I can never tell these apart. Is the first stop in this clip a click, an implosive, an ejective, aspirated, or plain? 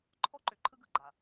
click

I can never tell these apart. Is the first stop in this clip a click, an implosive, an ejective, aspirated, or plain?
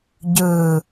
plain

